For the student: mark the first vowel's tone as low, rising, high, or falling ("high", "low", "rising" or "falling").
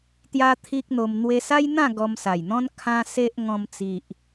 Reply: high